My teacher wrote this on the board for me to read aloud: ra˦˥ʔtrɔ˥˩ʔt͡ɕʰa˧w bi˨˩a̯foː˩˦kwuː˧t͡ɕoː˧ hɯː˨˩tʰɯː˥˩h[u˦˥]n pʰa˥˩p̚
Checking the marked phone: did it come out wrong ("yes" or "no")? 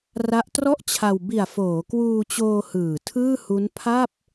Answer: no